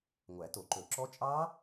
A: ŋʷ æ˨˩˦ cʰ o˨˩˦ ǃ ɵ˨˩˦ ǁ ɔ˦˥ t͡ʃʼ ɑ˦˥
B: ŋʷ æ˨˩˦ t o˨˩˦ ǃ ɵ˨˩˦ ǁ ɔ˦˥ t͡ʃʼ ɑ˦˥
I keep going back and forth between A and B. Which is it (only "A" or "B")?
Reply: B